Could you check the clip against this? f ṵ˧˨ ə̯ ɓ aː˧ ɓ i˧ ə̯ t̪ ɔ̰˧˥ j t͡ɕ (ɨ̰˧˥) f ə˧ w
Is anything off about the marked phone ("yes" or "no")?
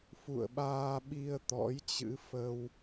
no